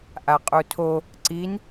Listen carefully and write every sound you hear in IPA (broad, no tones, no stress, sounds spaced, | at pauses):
ʔ a qʼ u tʰ o | ǀ i n